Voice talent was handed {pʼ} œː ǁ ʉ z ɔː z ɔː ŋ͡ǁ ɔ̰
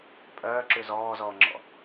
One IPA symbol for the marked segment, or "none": pʼ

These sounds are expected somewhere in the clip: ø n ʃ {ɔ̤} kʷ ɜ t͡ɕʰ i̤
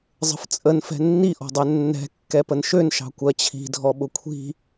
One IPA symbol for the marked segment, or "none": ɑ̤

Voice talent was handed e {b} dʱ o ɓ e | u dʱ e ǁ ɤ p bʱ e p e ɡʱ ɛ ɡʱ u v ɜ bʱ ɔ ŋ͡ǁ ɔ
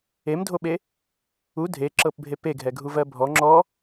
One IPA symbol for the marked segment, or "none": m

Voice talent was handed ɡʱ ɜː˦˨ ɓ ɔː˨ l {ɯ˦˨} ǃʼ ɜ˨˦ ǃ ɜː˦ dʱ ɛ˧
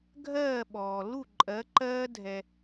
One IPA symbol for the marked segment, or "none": u˦˨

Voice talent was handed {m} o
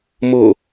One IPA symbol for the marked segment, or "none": m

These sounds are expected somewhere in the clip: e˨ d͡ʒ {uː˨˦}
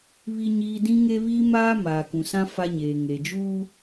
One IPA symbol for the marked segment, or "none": uː˦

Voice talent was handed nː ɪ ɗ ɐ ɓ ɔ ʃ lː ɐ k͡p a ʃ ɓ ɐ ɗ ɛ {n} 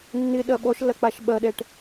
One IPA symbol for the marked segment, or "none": ʈ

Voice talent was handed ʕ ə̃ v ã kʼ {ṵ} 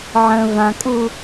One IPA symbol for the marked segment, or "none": u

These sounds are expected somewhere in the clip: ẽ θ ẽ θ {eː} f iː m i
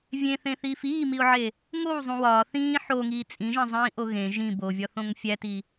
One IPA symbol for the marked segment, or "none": iː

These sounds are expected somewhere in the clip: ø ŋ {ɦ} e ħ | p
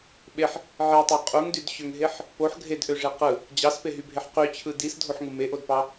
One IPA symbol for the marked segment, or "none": ɦ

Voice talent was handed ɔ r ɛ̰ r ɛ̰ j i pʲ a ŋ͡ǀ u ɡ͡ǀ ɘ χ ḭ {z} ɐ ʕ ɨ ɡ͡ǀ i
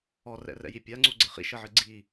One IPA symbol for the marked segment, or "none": ʃ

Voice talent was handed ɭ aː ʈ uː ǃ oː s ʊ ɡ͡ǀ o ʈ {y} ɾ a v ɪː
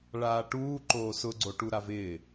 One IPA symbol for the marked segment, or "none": u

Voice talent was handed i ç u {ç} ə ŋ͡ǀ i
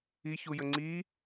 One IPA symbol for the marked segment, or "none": j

